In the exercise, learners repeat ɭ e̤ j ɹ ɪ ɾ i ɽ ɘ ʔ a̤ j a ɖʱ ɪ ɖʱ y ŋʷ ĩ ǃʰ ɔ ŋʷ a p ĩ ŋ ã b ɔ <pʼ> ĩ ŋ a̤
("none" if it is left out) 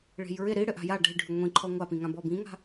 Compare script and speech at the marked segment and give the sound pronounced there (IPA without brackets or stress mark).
b